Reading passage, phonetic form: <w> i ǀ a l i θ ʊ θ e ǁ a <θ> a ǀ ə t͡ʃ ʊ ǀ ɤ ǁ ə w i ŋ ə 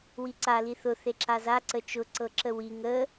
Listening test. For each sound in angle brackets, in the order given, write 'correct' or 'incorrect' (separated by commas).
correct, incorrect